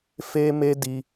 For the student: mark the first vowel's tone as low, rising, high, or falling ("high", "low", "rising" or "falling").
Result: high